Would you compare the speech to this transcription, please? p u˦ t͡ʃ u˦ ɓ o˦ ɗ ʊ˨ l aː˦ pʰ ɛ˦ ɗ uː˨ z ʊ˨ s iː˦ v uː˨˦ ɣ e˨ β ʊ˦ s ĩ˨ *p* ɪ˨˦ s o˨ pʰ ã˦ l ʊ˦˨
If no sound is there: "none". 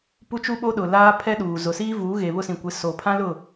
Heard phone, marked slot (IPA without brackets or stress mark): kʷ